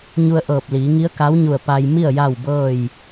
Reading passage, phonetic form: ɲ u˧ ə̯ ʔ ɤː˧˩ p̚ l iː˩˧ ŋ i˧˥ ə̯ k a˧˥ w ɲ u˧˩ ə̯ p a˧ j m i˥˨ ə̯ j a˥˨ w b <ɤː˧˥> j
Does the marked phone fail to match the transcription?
yes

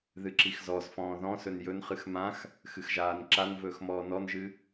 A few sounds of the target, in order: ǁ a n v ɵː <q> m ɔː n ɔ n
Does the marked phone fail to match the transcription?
yes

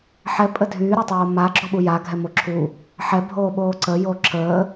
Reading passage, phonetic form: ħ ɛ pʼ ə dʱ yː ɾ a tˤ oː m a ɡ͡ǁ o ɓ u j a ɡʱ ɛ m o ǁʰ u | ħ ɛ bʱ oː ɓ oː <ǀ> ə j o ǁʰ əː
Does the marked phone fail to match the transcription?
no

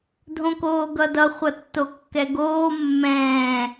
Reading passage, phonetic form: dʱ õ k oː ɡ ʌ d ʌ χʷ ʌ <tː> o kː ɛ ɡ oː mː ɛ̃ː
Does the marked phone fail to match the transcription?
no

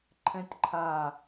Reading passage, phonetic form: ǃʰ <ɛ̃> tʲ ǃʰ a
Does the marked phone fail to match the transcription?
no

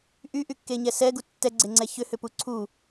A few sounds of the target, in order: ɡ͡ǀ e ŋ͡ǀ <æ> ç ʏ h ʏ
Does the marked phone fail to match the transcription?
yes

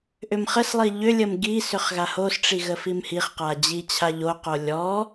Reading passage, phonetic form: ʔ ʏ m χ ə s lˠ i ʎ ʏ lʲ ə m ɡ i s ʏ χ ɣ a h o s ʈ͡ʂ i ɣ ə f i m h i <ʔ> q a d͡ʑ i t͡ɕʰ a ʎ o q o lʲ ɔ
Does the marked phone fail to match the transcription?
yes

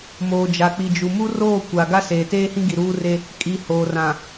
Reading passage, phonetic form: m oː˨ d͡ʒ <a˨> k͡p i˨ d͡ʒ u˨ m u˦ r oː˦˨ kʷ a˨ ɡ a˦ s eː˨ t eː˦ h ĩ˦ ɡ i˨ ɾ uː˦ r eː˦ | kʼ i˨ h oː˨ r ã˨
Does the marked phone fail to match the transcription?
no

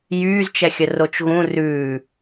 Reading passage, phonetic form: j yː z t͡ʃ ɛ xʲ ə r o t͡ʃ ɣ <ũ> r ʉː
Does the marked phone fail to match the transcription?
no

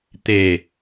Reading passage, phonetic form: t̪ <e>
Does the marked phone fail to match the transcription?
no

